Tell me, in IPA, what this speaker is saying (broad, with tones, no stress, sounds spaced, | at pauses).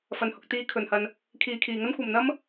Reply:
f ɐ˨ n h ʊ˨ k̚ t̪ iː˧ kʰ ɵ˨ n h ɐ˧ n | kʰ iː˨ kʰ iː˨ ŋ ɐ˥ n kʷ ɐ˨ m n̪ ɐ˥ m